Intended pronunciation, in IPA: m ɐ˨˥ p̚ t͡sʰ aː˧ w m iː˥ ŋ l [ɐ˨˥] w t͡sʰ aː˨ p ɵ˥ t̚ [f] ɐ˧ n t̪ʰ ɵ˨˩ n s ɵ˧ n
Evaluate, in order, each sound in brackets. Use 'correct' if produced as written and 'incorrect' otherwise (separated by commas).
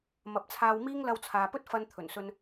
incorrect, correct